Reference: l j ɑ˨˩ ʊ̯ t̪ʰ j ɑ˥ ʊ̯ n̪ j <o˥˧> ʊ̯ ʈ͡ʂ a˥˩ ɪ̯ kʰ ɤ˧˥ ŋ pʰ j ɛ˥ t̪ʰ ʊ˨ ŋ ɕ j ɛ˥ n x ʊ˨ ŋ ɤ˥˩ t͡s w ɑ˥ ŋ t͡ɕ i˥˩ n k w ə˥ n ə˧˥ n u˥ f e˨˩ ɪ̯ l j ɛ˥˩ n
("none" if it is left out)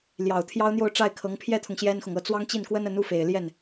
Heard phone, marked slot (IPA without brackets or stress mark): o˥˧